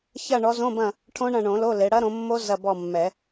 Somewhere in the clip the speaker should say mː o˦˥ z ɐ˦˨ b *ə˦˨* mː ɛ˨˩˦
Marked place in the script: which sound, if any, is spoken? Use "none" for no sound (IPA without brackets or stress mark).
ɔ˦˨